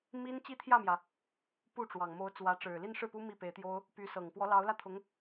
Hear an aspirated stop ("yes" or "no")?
yes